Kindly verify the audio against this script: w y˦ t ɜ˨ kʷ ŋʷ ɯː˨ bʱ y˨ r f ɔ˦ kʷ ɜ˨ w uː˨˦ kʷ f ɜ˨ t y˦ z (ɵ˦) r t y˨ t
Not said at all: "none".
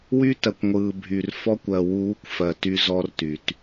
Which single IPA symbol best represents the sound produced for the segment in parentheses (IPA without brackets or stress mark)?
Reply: ɔ˦